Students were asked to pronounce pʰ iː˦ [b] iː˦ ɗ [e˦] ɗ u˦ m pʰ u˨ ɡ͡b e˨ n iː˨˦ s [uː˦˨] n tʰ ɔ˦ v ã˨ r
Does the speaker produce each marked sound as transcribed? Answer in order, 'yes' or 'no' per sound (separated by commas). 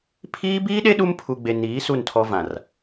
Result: yes, yes, no